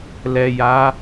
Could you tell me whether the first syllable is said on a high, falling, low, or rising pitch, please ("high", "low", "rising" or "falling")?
low